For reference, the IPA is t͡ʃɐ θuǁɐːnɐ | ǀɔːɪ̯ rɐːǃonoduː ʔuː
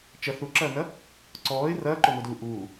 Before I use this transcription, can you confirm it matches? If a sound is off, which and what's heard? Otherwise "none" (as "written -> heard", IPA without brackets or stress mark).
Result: none